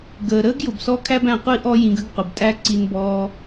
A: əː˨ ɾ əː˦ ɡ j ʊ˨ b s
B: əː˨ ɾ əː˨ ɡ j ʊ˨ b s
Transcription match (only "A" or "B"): A